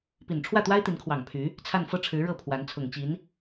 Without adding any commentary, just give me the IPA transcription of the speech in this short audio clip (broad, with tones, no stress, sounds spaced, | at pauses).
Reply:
p i˨˩ n ʈ͡ʂʰ w ä˥˩ t̪ w a˥ ɪ̯ t̪ i˧˥ n kʰ w ɑ˨˩ ŋ pʰ y˧˥ | t͡sʰ a˥˧ n f ɤ˥˩ ʈ͡ʂʰ ɻ̩˧˥ ɻ ɤ˥˩ pʰ w a˧˥ n t͡sʰ ʊ˨˩ ŋ t͡ɕ i˧˥ n